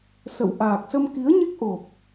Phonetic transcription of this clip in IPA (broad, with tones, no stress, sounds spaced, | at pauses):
s ə̰˧˨ w ʔ aː˨˩ k̚ s ə˧ m k i˨˦ ə̯ ɲ e˦˥ k̚ ʔ o˨˩ p̚